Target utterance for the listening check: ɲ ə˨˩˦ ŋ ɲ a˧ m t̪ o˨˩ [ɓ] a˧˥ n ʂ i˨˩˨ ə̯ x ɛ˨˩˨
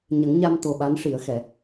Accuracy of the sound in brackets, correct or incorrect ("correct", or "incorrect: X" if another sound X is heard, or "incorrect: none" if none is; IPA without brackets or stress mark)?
correct